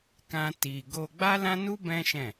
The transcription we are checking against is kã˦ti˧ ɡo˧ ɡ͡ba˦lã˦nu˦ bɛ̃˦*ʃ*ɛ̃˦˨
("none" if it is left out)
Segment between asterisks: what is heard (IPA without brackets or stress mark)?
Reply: ʃ